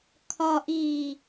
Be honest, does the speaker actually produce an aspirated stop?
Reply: yes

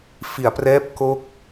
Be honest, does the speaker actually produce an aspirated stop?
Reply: no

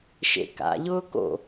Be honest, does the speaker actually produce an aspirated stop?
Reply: no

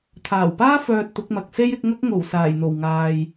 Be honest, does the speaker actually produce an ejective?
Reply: no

